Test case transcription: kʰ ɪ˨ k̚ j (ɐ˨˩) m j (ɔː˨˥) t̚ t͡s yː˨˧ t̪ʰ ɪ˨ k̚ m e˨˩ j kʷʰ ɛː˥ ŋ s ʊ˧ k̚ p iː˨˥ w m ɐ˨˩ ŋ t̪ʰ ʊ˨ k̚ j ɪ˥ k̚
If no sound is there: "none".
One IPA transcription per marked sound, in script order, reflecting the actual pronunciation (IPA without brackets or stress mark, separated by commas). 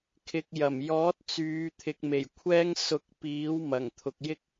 ɐ˨˩, ɔː˨˥